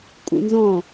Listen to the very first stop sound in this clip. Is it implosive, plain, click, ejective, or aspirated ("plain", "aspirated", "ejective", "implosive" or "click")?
ejective